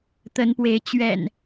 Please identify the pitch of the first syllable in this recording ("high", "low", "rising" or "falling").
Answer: rising